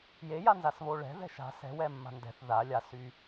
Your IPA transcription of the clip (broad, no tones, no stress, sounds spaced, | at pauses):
j e j a n z a s β o ɭ ɛ̤ ð ɛ̤ ʃ a̤ s ɛ̤ w ɛ mː a̤ n d ɛ̤ θ ð a lʲ a s y